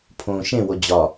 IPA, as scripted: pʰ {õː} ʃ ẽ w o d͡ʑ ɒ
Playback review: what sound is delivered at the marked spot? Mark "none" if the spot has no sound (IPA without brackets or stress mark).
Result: õː